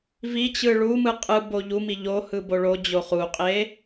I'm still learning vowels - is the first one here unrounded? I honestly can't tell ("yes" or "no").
yes